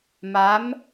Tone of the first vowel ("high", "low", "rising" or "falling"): rising